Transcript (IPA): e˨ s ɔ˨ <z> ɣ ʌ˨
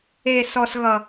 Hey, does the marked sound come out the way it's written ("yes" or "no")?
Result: no